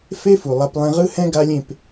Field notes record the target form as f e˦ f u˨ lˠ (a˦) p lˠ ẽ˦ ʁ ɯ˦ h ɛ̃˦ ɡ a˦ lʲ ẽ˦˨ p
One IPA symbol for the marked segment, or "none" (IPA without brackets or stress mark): a˦